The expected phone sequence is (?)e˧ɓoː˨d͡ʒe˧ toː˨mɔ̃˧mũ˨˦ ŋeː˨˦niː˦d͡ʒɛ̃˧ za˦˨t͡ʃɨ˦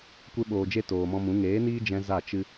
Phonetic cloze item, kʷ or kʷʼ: kʷ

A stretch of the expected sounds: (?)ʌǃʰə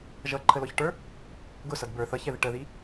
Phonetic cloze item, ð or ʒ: ʒ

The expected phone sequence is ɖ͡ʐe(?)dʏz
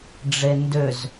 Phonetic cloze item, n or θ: n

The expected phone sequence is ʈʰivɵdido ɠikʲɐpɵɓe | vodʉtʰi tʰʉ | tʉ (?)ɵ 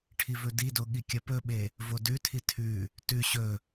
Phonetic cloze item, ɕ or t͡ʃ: ɕ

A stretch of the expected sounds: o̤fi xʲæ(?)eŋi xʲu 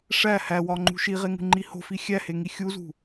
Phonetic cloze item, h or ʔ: h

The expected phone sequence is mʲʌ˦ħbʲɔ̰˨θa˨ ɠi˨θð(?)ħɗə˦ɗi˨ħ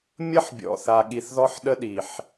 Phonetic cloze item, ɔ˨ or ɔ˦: ɔ˦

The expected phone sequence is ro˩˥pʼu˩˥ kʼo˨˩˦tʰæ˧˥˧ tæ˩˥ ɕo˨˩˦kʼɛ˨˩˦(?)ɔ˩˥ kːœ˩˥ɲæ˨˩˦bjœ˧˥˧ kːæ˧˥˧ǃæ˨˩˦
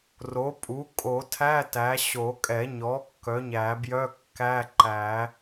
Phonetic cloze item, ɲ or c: ɲ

